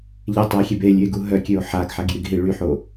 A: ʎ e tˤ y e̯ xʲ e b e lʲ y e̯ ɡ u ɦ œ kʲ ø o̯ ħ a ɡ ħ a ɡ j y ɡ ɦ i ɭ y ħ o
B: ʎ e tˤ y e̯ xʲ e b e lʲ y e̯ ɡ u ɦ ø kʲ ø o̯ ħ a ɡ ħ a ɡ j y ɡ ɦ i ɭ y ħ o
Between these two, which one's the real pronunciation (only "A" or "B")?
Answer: A